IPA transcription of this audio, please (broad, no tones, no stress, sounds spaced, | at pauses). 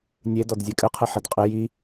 nʲ e d ɔ d zʲ e kʼ ɘ qʰ ɨ ħ ɘ d qʼ ɪ j i